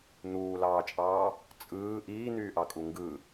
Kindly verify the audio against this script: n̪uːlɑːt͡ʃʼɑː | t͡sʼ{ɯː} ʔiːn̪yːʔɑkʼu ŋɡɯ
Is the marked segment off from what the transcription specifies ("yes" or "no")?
no